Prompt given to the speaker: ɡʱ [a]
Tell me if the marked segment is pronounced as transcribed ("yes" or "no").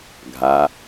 yes